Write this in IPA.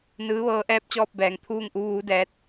n ɯː˧˥ ʋ ɤː˧˥ ʔ ɛː˧˥ p̚ t͡ɕ ɔː˧ p̚ b ɛː˩˧ ŋ t̪ʰ uː˥˨ ŋ ʔ u˧˥ ʋ uː˧˥ d ɛː˧˥ t̚

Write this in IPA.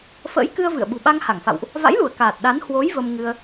f ə̰ː˧˥ j k ɨ˧ ə̯ v ɨ̰˧˨ ə̯ ɓ ṳ˨˩ ɓ a˧ ŋ h a˧˩ ŋ f a̰˧˨ w ʔ | v a̰˧˥ j l u˧˩ ə̯ k aː˨˩ t̚ ɗ a˨˦ n h w o˨˦ j v ə˧ m ŋ ɨ˧ ə̯

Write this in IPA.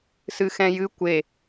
s ɨ x ɛ̃ j ɨ kʷ e

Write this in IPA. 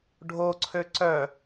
ɖʱ o ǀʰ ø ǀ œ

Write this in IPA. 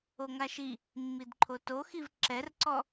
o ŋ a ʃ i | mː i d ǃʰ o t o x i v ǁ ɛ r ǀ ɔ

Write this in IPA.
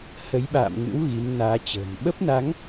h ə˨˦ j ɓ a̰ː˧˨ m ŋ ɨ̰˧˥ w ɣ i˨˦ m n aː˨˦ t͡ɕ ə̤ː˨˩ n ɓ ə˦˥ p̚ n a˨˦ ŋ

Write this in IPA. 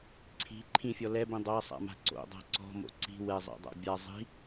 ǀʰ i̤ ǃʰ ĩ fʲ ɔ l ɛ b ĩ dˤ a sˤ a̰ m a̤ ǀ o̰ dˤ a̤ ǀ ɔ̤ m o̰ ǀ i̤ w ɛ zˤ a̰ dˤ a̰ bʲ a zˤ i̤

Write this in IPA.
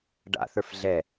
ɖ a̰ θ ə˞ f ɮ ɛ

